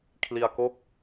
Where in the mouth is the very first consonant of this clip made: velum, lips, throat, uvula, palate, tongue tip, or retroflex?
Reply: velum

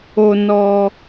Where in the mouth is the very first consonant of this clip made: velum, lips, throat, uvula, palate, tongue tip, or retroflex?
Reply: tongue tip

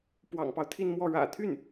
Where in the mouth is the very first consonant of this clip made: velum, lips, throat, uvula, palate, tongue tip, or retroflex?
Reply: lips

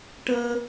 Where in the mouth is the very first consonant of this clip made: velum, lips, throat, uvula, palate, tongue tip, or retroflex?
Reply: retroflex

